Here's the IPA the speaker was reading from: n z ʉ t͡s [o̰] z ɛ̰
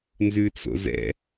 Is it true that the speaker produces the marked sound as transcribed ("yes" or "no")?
yes